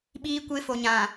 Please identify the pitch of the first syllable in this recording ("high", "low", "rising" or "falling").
high